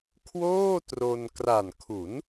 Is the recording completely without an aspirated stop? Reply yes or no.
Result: no